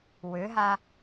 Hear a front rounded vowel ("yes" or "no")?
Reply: yes